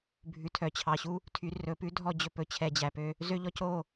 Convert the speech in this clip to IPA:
bʱʉ˨tʰœ˨t͡ɕʰɑ˨ ɕu˦ | tʰy˨ rɵ˨pʉ˦dʱɔ˦˨ d͡ʑɵ˦˨pɵ˨ t͡ɕʰɛ˨d͡ʑæ˨pø˦ | zø˦ʎɔ˦co˦˨

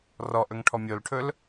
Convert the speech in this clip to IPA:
rɔʔɵŋʈʰɔ mʲolʈʰɵl

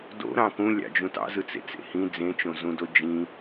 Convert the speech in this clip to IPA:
do̰ɾɑ̃ kũlʲɑ̰d͡ʒũ tɑ̰zɯt͡sḛt͡sḛ hĩ d͡zẽt͡ʃõzũdo d͡ʒĩ

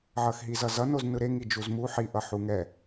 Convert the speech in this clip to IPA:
ʕʌxɦizʌzʌ noznɯɾe ŋid͡ʒuzmu ħi ʔʌħuŋɛ

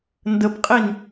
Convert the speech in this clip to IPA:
ndəpqʼin

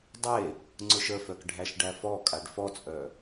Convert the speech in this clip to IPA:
dˤe | ŋ͡ǀʊʃəfœk ɖʱæʃɖæfɔkʼaɖ fɔt͡sʼœ

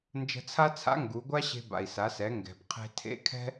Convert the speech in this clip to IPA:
nd͡ʒə̤˧t͡sʰa˥t͡sʰa̰˧˥ ŋɡu˩˧ɡʷa˥ɕe̤˧ ba̰˩i̯sa˩˧sɛ˩˧ ŋɡɛ̤˩b qʰe̤˧tʰḛ˧˥ kʰɛ̤˥

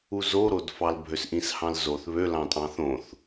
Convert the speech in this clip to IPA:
uzoɾodfɑl bʱøsʔĩshɑ̃lzoθ βølɑ̃tʼɑ̃θ õθ

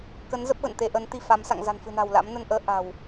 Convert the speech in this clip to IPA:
kə˨˦n zə˦˥p̚ɣə̰˧˨nt̪e˧ʔə˨˦n t̪i˧fa˨˦m sa̰˧˨ŋza̤˨˩nfɨ̤˨˩na̤˨˩w la̰˧˥mnə˧n ʔəː˨˦ʔa̤˨˩w

